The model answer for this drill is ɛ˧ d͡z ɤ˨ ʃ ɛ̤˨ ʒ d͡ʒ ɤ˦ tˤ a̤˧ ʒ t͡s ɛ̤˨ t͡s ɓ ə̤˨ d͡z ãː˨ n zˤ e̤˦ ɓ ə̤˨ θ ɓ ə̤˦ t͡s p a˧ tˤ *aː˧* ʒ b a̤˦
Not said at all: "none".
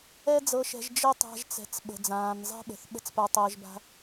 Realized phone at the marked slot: əː˧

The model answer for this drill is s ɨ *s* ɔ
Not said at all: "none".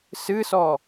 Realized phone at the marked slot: s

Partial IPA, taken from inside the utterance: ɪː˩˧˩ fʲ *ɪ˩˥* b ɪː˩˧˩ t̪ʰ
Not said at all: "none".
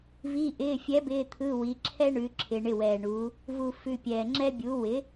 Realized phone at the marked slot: ɛ˩˥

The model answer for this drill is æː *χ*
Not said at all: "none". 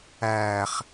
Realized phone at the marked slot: χ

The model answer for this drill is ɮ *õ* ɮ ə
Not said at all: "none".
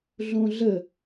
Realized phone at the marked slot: õ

